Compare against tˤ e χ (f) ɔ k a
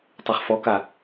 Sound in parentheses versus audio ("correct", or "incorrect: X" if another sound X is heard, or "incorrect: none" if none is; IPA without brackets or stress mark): correct